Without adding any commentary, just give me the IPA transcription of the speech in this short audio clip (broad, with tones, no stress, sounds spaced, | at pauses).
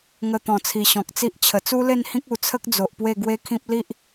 ŋ ə˧ t̪ ɔ̃˨˩ t͡sʰ i˨˩ ɕ ɔ̃˨ k̚ t͡s i˦ ʔ t͡ɕʰ ə˨˩ t͡s u˦ l e˥˧ n h ĩ˦ k̚ u˨˩ t͡sʰ ə˦ k̚ d͡z o˨ ʔ p w e˥˧ ɡ w e˦ kʰ ĩ˦ p̚ l i˦ ʔ